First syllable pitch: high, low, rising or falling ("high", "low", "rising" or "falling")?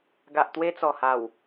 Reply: low